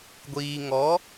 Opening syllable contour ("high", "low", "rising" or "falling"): low